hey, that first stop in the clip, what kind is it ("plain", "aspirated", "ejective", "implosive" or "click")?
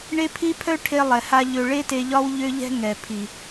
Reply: aspirated